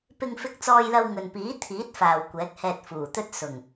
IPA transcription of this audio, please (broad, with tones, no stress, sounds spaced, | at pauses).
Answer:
p ɪ˧ ŋ f ɪ˧ k̚ t͡s ɔː˧ j l ɐ˧ w ŋ ɵ˨ n p iː˨˥ t̪ʰ iː˨˥ t̚ f aː˨ w kʷ ɛː˨˥ k̚ h ɛː˧ t̚ f uː˨˩ t̪ ɵ˥ t̚ s ʊ˨˩ ŋ